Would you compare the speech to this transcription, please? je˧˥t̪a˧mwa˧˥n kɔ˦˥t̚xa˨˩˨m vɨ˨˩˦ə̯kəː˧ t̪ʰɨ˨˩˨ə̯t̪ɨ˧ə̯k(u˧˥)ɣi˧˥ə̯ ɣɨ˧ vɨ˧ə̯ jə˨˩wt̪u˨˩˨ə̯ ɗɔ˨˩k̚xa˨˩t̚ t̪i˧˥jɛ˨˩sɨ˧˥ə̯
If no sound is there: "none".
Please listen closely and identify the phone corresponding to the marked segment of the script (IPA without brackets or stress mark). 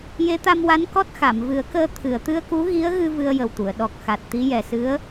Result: u˧˥